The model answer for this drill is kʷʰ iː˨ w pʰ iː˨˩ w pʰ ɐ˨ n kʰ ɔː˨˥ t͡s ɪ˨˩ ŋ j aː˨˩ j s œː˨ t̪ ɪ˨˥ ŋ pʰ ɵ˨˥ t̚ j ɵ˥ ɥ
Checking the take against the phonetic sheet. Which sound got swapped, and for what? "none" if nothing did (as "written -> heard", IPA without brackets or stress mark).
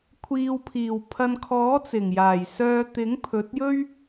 none